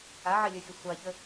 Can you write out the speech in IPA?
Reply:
aʕelʲɵxʲə sʷaçə

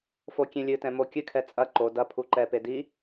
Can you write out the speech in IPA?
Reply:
fokʲẽlʲɨtɛ̃ mokʲɨkʰɛ t͡sʼɐ ǃo dɐ pʰuǃɛpe di

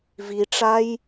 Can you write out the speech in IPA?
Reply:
viʈ͡ʂaj

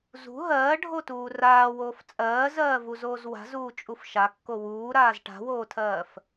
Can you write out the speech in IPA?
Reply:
zṳ ɦɜːɖʱotuː raːwoːf t͡sʼɜːzɜːvuzoːz wa̤zuːt͡ʃʼuf ʃakːo wuːɾaːz ʈa̤woːtʰɜːf

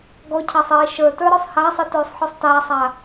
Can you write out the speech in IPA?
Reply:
ɡɔcʰasˤ iːʃə˞tə˞ ɾɔsˤhaːsˤi tɵːsˤħɔsˤtaːsˤaː

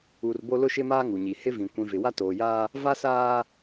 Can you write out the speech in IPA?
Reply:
u˨r bo˦lʊ˦ʃɪ˦maː˦ ŋu˨ɲi˨ hɪ˦vĩ˨ kʷĩ˨vɪ˨ wa˦toː˨jaː˦ | va˦saː˦

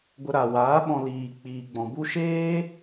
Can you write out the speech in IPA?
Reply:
ɡʷə˧ ɾa˨waː˨˦ ɓɔ̃˧ liː˨k͡piː˨ɡ͡bɔ̃˨ bu˧ʃeː˦

